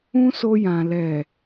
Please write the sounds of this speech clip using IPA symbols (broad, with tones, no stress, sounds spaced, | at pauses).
ũ˦ s o˧ j ã˨ l ɛ˨